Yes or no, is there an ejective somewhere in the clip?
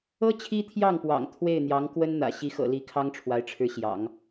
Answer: no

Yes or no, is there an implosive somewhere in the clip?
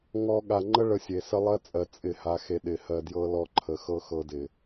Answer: yes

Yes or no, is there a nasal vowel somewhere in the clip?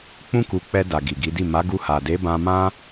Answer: yes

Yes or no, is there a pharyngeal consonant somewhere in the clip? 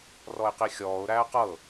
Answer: no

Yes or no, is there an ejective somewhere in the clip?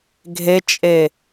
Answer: yes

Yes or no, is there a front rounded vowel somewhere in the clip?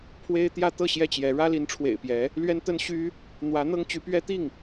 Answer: yes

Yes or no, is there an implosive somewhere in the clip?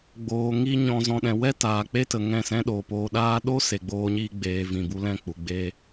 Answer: yes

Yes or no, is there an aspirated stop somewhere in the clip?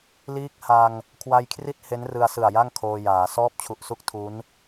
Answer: yes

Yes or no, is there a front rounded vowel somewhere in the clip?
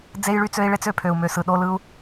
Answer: yes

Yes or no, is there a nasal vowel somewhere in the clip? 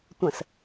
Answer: yes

